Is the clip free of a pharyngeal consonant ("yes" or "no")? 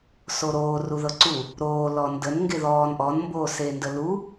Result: yes